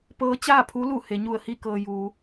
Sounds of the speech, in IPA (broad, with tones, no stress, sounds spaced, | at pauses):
p ɤː˧˥ t͡ɕ aː˥˨ pʰ u˧˥ l u˧˩ h e˩˧ ɲ u˧˩ ə̯ h i˥˨ k ɤː˩ j uː˩˧